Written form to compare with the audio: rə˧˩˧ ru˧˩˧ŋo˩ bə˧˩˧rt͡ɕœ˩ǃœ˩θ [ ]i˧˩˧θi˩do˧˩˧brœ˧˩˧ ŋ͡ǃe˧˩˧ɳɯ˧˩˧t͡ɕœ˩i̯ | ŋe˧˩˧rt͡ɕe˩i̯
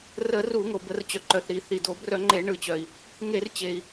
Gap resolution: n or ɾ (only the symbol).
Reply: ɾ